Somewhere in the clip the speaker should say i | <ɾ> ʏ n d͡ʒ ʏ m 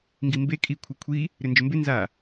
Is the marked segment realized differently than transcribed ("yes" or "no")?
no